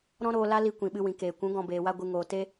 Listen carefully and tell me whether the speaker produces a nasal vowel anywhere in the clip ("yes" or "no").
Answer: yes